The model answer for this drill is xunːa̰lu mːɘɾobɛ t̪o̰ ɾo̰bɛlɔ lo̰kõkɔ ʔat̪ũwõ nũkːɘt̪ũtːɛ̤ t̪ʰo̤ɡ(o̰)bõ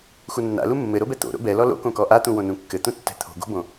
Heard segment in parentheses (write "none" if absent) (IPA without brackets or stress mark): o̤